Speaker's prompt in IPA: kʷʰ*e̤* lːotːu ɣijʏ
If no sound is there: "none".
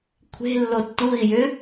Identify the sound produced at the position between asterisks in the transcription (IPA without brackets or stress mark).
e̤